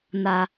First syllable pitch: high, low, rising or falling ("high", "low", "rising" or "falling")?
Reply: low